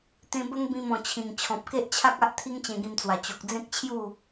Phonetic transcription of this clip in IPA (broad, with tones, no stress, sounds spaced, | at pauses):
t̪ ẽ˧ b ə˦ ŋ b ĩ˧ m ɔ̃˨˩ t͡ɕʰ ĩ˨˩ ŋ t͡ɕʰ ɔ̃˨ p̚ k e˦ ʔ t͡ɕʰ a˦ k̚ a˦ ʔ t̪ʰ i˦ ŋ t͡ɕ ẽ˧ ɡ ĩ˧ m t͡s w a˨˩ t͡ɕ o˨ k̚ d͡z ẽ˦ k̚ t͡ɕʰ j u˥˧